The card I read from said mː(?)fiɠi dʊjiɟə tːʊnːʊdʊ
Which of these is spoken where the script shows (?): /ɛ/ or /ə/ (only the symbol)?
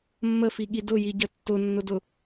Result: ə